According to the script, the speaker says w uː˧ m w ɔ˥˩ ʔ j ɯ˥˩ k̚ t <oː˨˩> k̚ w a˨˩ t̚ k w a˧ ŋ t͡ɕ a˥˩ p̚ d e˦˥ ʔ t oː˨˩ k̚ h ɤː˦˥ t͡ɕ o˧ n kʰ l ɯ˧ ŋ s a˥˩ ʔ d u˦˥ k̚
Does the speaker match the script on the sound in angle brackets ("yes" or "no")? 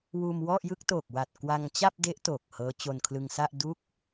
yes